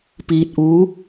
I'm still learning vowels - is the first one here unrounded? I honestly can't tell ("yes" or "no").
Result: yes